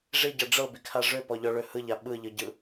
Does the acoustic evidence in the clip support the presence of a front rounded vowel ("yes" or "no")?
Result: yes